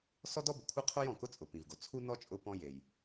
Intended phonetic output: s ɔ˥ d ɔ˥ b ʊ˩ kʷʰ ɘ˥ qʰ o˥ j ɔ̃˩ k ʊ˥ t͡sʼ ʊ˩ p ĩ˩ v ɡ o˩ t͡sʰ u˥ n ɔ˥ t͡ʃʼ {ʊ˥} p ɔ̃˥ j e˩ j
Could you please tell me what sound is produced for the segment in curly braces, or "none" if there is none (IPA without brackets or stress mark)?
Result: ʊ˥